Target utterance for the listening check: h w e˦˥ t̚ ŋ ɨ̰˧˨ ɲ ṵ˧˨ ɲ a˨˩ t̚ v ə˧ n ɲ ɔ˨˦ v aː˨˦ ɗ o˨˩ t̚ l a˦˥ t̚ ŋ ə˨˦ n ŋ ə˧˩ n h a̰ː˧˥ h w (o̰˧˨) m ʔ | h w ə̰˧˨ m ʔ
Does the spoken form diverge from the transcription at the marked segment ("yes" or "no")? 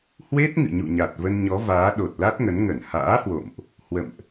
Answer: no